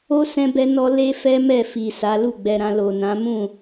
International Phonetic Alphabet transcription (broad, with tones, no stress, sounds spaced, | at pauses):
o˦ s ɛ̃˦ b ɛ˦ n ɔ˦ l e˦ f ɛ˦ m ɛ˦˨ f i˨ s a˨˦ l u˦˨ ɡ͡b ɛ˧ ɾ ã˧ l o˨ n ã˨˦ m ũ˦˨